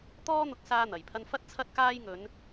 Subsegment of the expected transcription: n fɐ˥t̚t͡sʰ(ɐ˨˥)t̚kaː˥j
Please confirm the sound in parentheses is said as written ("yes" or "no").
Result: no